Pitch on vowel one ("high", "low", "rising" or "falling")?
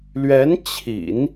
rising